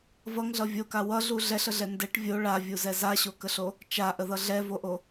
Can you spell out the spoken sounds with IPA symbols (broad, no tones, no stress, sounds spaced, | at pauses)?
v ʌ ŋ ɮ ʌ vʲ o k a w ʌ ɮ u ɮ ɛ ɬ ə ɮ ɛ n d ɛ ʈ vʲ o ɭ a vʲ u z ɛ z a ɕ o k ə ɬ o | t͡ʃ a ʔ ə ð ʌ ɮ ɛ v o ʔ o